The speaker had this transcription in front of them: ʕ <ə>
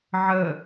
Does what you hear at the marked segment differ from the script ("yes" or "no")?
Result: no